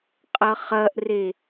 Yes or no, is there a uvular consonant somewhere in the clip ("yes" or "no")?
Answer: yes